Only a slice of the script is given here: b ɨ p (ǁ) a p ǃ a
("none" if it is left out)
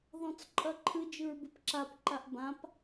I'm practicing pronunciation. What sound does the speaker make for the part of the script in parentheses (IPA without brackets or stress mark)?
ǁ